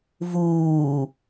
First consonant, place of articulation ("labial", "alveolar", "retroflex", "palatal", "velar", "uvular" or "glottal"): labial